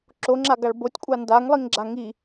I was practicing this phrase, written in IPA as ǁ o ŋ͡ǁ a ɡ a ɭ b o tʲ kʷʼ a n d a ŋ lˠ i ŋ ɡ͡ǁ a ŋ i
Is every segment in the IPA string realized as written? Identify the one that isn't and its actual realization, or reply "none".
none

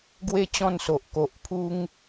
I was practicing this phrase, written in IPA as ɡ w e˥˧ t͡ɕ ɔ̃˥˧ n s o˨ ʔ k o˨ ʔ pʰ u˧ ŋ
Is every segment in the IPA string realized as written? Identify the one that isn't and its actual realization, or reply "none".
none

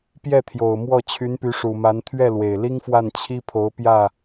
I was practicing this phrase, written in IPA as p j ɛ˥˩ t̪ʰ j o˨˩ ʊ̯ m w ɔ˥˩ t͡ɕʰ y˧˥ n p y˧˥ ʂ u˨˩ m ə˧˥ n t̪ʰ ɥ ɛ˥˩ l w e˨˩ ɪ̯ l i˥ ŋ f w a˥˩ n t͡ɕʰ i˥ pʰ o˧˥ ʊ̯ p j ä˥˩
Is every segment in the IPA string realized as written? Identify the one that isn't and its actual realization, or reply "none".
ə˧˥ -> a˧˥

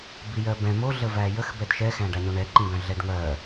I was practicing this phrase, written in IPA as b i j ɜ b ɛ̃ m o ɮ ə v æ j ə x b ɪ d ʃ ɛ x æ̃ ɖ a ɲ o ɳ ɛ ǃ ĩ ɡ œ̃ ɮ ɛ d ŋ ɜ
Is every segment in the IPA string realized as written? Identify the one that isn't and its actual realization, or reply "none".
ɪ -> ɛ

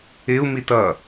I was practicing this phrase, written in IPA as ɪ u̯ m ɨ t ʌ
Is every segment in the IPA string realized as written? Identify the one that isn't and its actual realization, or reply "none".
ɨ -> i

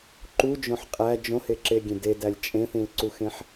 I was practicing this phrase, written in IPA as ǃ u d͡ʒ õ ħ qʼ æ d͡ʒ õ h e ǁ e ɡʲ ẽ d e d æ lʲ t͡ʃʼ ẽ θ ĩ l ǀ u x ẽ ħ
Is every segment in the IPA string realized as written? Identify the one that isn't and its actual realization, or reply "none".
none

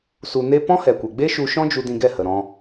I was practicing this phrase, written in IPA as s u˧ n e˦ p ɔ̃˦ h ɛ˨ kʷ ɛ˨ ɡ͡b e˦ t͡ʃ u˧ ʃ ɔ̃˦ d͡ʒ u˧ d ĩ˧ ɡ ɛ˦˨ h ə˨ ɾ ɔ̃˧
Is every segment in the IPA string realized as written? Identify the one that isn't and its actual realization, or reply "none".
t͡ʃ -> ʃ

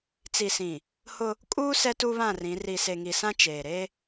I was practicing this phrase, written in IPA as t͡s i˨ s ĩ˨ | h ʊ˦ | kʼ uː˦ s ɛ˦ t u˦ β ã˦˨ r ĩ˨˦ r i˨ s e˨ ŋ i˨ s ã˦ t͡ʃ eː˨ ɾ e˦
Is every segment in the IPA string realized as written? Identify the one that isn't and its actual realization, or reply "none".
none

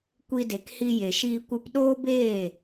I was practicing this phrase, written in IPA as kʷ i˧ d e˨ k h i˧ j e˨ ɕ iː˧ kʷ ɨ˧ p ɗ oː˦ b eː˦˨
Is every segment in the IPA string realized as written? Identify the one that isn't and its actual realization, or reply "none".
ɕ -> ʃ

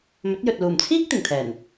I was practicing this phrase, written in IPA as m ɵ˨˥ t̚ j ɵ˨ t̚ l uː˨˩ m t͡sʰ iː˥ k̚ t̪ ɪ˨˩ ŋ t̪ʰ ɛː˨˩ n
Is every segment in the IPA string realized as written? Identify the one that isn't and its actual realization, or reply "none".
none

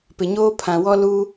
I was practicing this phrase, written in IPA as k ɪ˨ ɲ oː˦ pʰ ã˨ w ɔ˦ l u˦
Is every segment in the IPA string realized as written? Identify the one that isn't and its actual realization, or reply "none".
k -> p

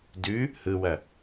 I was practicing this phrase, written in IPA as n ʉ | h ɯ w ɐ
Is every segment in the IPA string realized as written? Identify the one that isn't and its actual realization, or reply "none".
n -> d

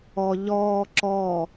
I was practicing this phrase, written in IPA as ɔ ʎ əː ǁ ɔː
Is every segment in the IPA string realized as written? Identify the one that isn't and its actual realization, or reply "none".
əː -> ɔː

